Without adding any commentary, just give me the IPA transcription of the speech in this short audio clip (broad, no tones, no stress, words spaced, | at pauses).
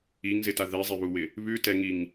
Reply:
iŋzɪta ðɛzˤeβuwɪ | βʉtɛŋiŋ